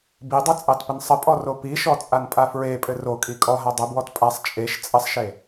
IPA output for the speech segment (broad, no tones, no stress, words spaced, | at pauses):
bidˤɘ t͡sʼɑtpənsˤəpʼɔ ropiʃɔ t͡sʼanpʼafɹepʼɘ rokʼi kʼɔɦa dˤəbwɔt pʼasˤ t͡ʃʼeʃ t͡sʼəsˤʃe